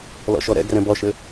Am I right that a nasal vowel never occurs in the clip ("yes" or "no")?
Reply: no